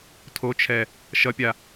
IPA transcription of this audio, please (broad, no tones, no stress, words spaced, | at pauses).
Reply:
tʰot͡ʃʰɛ | ʃʌpʲa